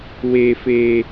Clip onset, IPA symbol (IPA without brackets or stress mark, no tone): w